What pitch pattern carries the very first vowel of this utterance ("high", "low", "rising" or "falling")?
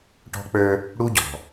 high